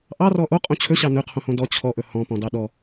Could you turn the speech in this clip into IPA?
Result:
ʔ ɑ r ɔ ʔ o qʼ õ t͡ɕʰ ɵ ɕ ɑ n ɵ qʰ õ h õ d ɔ t͡ɕʰ ɔ ʔ ɵ h ɔ̃ p ɔ̃ d ɑ ɗ ɔ

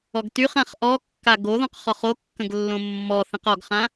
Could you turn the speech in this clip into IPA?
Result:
ɔ ɡ t y χ ã χ ʔ ɔ kː a ɡ o ð ɔ̃ q χ ɔ χ o kː ə̃ ɡ lː õ mː ɔ θ ə̃ q ɔ ɡ χ ã

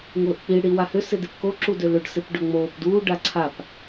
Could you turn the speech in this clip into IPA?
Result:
ŋ ʊː ʔ k͡p i ɽ i w a h ʏ s ɪ d ɪ p k o ǁ u d ø l ʏ ɖ s ɪ p ɖ œ ŋ͡m oː p d uː ɖ a ǀʰ a p

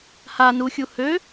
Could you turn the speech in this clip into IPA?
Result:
h a n u xʲ u h ø

